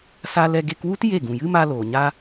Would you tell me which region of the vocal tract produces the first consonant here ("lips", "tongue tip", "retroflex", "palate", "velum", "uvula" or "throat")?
tongue tip